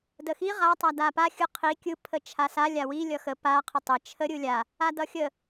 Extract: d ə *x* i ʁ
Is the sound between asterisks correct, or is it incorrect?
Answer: correct